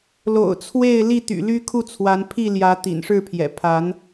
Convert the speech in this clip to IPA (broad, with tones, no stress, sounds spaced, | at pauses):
l o̰˨˩ ʊ̯ t͡sʰ w e˥˨ ɪ̯ l i˥˨ t̪ y̰˨˩ l y˦ kʰ u˥˨ t͡sʰ w a˨˦ n pʰ i˥˨ l j ä˨˦ t̪ ḭ˨˩ n ʂ ɻ̩˥˨ pʰ j ɛ̰˨˩ pʰ a˨˦ n